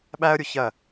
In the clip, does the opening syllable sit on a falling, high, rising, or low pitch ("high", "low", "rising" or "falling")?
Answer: high